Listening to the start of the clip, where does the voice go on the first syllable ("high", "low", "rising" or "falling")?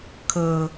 low